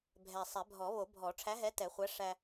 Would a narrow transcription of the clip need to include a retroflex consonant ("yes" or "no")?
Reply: yes